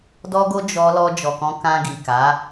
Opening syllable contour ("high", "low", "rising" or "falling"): high